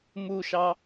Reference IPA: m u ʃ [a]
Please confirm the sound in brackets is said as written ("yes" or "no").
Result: no